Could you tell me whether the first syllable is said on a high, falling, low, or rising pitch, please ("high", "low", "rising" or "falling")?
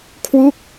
falling